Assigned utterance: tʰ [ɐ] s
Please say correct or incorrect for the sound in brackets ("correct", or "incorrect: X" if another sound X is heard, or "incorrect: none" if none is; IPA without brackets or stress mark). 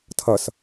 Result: correct